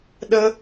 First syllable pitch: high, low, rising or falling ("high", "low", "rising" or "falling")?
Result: high